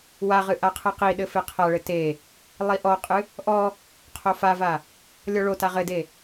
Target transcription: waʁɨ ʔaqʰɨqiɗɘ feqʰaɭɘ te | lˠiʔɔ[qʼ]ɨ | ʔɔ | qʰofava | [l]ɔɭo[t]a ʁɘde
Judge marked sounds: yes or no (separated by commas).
yes, no, yes